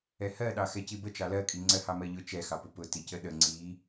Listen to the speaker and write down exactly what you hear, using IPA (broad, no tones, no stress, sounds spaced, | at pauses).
ɛ h ɜ ɗ ɑ x ɛ c i b ə t͡ʃ ɑ l ɜ kʼ i ŋ͡ǀ ɜ h ɑ m ɜ ʎ ʊ t͡ʃ ɛ x ɑ p ʊ p ʊ t i c ə ɗ ə ŋ͡ǀ i